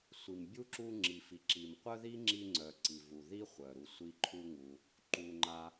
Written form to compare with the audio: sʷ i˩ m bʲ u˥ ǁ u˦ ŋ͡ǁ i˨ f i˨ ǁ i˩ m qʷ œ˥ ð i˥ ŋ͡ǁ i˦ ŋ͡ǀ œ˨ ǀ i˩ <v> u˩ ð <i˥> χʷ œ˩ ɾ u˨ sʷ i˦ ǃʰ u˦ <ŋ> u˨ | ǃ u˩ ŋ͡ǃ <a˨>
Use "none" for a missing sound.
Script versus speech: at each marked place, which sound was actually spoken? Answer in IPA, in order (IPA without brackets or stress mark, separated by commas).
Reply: v, i˥, ŋ, a˨